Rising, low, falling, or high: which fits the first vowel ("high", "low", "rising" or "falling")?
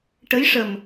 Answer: rising